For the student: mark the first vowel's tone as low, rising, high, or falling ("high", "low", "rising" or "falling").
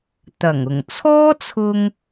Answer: low